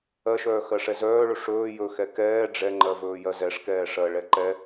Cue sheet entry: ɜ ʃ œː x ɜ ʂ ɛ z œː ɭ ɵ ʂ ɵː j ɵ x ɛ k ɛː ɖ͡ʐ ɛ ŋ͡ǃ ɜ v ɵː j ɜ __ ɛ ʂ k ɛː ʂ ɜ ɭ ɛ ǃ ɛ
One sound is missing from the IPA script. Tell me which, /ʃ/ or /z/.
z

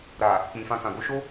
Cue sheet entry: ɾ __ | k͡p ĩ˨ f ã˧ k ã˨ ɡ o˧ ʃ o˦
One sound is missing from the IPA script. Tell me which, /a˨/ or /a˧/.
a˨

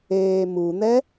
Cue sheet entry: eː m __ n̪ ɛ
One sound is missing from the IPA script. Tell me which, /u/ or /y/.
u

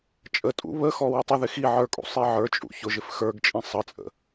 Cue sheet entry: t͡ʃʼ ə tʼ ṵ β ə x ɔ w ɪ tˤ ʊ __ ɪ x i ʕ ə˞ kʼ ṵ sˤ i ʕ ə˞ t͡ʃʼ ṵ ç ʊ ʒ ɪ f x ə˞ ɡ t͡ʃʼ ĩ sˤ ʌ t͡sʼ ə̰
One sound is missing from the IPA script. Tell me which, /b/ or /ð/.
ð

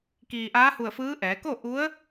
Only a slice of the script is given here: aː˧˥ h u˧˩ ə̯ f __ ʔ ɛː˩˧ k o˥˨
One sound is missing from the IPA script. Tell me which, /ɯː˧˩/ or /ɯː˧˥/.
ɯː˧˥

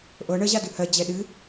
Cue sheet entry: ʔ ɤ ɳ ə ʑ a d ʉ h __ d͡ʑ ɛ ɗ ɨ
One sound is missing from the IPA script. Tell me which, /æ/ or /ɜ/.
ɜ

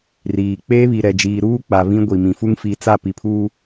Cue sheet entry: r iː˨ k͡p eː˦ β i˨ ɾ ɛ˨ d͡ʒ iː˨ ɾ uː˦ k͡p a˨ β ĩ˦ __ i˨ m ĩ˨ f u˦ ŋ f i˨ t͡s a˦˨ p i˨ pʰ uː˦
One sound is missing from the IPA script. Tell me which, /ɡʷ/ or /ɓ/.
ɡʷ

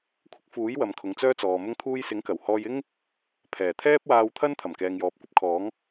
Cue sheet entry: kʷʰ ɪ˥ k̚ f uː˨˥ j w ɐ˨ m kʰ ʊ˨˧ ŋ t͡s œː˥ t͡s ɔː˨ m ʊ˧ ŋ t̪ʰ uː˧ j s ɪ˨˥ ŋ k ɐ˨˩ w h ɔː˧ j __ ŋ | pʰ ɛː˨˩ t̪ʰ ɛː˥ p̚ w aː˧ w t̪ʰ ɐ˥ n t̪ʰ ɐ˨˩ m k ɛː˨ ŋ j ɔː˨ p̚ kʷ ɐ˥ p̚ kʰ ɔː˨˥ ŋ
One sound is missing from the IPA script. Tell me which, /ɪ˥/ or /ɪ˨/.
ɪ˥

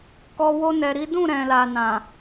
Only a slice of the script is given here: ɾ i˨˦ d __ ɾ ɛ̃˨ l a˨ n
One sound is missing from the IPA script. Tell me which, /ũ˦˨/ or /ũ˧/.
ũ˦˨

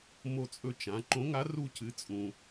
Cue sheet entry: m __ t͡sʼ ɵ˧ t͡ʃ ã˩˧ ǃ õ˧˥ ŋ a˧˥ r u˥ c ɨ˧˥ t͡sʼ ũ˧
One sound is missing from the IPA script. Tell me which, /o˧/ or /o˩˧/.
o˧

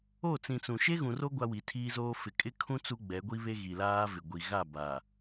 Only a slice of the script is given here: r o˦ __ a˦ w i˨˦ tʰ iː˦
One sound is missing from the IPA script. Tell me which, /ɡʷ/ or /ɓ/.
ɡʷ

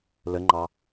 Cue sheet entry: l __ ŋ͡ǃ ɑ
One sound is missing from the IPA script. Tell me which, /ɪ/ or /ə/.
ə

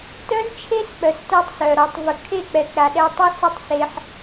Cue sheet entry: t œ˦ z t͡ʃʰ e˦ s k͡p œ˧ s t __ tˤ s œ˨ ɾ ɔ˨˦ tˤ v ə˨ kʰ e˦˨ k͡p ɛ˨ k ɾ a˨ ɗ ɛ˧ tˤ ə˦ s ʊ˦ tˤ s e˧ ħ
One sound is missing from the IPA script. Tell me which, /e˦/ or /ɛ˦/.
ɛ˦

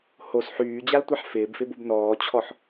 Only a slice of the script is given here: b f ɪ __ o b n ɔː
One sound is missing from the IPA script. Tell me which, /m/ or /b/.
b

